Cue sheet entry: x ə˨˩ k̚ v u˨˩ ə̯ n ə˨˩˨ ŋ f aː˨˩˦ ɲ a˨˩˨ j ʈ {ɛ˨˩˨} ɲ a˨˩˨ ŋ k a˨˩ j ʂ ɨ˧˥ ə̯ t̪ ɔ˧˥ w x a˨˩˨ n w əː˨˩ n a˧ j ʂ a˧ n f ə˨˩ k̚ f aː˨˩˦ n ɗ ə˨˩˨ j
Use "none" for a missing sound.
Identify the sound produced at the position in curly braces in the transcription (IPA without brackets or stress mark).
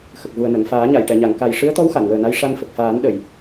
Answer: ɛ˨˩˨